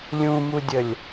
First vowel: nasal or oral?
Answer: nasal